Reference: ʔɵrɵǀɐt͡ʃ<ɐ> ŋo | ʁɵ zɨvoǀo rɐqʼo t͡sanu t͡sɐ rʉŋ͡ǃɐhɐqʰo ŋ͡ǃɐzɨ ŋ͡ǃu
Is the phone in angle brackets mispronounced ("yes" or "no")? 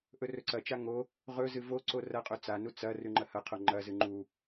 yes